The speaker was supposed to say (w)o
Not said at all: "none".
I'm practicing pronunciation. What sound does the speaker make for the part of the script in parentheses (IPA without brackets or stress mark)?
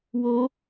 w